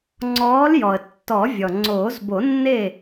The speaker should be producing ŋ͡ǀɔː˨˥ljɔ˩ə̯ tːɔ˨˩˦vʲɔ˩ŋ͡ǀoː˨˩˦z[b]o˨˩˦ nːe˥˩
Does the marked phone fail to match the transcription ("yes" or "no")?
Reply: no